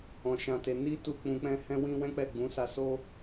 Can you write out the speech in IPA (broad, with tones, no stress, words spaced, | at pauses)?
ɔ̃˧ʃã˧te˧ ni˦ tu˦k͡pũ˧k͡pɛ̃˦ hɛ̃˦wĩ˦ wɛ̃˦k͡pɛ˦˨ɡ͡bũ˨˦ sa˧so˦